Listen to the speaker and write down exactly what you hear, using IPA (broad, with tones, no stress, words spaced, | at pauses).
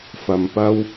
fɐ˨mpɐ˥w